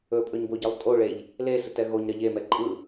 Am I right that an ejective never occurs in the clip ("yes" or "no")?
no